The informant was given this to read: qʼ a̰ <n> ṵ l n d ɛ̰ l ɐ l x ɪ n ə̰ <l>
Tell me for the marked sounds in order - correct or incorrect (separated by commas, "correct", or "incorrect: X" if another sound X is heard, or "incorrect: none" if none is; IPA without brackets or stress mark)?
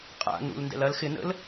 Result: correct, correct